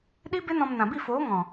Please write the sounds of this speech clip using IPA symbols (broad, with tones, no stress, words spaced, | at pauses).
ɗi˦ be˦nɔ̃˧m nã˨bi˦˨foː˨˦ ŋɔ̃˨